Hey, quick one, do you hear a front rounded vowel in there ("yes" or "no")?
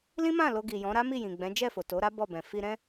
no